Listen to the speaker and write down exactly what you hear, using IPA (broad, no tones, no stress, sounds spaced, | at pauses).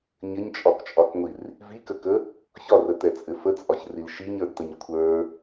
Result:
ɲ ɘ ɲ t͡ʃʼ ɒ k t͡ʃʼ ɒ k ŋʷ i r | v i k ə k ə | ç ɒ r ə t ɛ t͡sʼ ɘ f ə t͡sʼ ɒ ç r i l ʃ i ɲ ə˞ d t ə ɲ kʷʰ ə˞